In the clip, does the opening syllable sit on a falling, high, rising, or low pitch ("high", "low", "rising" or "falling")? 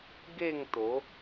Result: falling